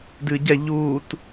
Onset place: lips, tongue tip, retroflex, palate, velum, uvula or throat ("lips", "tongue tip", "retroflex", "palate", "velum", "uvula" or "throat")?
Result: tongue tip